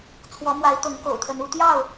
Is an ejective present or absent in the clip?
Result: absent